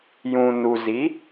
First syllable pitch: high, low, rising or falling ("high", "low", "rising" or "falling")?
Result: low